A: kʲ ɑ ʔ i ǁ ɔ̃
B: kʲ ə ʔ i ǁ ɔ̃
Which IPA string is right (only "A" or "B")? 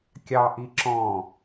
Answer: A